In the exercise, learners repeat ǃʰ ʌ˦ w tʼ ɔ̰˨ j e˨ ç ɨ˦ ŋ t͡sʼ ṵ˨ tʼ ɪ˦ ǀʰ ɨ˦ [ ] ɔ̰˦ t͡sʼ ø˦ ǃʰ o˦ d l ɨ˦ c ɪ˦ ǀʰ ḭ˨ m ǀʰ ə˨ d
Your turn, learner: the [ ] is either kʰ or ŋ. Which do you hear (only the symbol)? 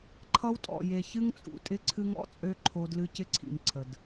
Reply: ŋ